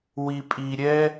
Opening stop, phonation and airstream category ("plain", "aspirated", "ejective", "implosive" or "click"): ejective